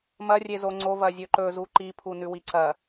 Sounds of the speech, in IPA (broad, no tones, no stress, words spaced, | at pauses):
mɐrʲezo ŋ͡ǀovɐzʲɵ ǃɵzu ǃipʰunʉwi ǀɐ